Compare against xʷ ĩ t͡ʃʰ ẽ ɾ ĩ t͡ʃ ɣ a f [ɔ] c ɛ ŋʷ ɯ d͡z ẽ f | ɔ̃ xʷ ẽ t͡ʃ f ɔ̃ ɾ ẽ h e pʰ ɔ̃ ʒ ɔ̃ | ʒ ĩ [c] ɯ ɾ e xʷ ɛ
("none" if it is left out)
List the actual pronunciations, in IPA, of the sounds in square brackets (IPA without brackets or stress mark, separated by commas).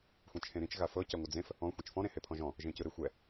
ɤ, c